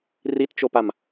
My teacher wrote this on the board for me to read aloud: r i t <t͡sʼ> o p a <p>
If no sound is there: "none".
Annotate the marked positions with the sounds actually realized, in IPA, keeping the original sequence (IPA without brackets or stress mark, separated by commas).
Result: t͡ʃ, m